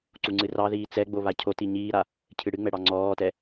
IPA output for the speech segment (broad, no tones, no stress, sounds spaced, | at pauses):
ǀ u ŋ͡ǀ ɨ r ɑ ð iː t͡s ɛ ɡ͡b o β a cʰ o t i ɲ iː ɾ a | cʰ ɨ ɽ ɨ ŋ͡m ɛ ɽ ɑ ŋ͡ǀ ɔː t ɛ